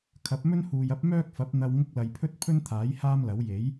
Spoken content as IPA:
kʰ ɐ˨˥ p̚ m ɵ˥ n h uː˨ j ɐ˥ p̚ m œː˥ k̚ f ɐ˨˥ p̚ n̪ ɐ˧ w ŋ ʊ˥ k̚ l ɐ˧ j pʰ ɵ˥ t̚ pʰ ɵ˥ n t̪ʰ aː˨˥ j h aː˥ m l ɐ˨˥ w j e˨˥ j

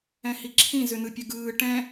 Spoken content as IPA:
ɛ̃ h i ǁʰ ĩ z ʏ n ɯ pʲ ə ɡ ɯː ʈ ɛ̃

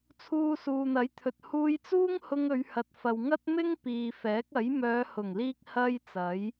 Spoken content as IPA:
t͡sʰ uː˧ s uː˨ n̪ ɐ˨˥ j t̪ʰ ɵ˨ t̚ h uː˧ j t͡s uː˥ ŋ h ʊ˧ ŋ ɵ˨˧ ɥ h ɐ˨ t̚ f ɐ˨ w ŋ ɐ˥ t̚ m ɪ˥ ŋ p iː˨ f ɛː˨˥ k̚ ɐ˨˥ j m œː˨˧ h ʊ˨˩ ŋ l iː˧ k̚ h ɐ˧ j t͡s ɐ˨˥ j

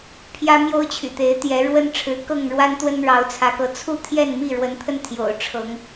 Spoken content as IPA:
pʰ j ä˦ m j o˦ ʊ̯ t͡ɕʰ y̰˨˩ t̪ e˨˦ ɪ̯ t̪ j ɛ˨˦ ɻ w ə˦ n ʈ͡ʂʰ ɻ̩˨˦ k ɤ˥˨ ŋ ɻ w a˦ n t̪ w ə˦ n ɻ ɑ˨˦ ʊ̯ t͡sʰ ä˨˦ k ɤ˨˦ t͡sʰ u˥˨ t̪ʰ j ɛ˥˨ n m i˥˨ ɻ w ə˨˦ n t̪ʰ ə˧ n t̪ʰ j o̰˨˩ ʊ̯ ʈ͡ʂʰ ɤ˨˦ ŋ

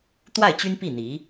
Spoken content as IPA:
t̪ w a˥˩ ɪ̯ t͡ɕ y˥ n p i˥˩ n̪ i˧˥

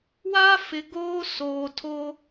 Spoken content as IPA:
w aː˦ f ɪ˨ ɡ oː˦ s oː˨ tʰ o˦

